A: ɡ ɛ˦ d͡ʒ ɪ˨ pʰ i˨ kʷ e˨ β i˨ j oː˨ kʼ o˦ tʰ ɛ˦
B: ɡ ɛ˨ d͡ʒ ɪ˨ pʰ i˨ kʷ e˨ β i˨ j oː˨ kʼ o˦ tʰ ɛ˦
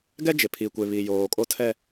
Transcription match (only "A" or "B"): A